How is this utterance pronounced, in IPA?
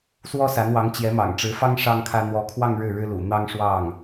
swɔ˥sa˧˥nwɑ˧˥ŋ t͡ɕjɛ˧˥mɑ̰˨˩ŋʈ͡ʂɻ̩˧˥fɑ˥ŋ ʂɑ˥ŋkʰä˥ n̪wɔ˧˥kʰwɑ˥˧ŋ ɻɻ̩˥˩ɻɻ̩˥lṵ˨˩ n̪ɑ˥ŋʂwɑ˥˩ŋ

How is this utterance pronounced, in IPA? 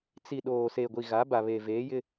t͡si˨ ɗoː˨ se˨ɡʷi˨ ɣa˨˦ba˨βe˨ veː˨˦jɪ˦

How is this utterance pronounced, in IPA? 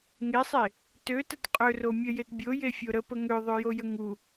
ŋesˤe | tøtət qʼøro mʲəjet bʲojefʲo ɾəpə ŋøðˤøjojə ŋu

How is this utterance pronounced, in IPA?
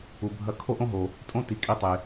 u˨bʱɐ˧˥ kʰo˥ʔõ˥ɦo˨ | tʼõ˧˥˧ti˩˥ kʼi˥˨tˤe˨

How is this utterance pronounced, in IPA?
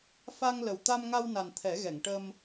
fa˧ŋ lə˨˩w t̪a˧mŋa˧wna˨˩n t̪ʰɛ˨˩˦ɣɛ˨˩˨ŋ ʈə˧m

